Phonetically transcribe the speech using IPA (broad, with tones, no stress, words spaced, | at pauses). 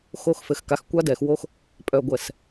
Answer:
xo˦˨xfɘ˨xka˨x kʷa˦dɛ˨xwo˦x | pʼœ˨ɡʷɛ˨s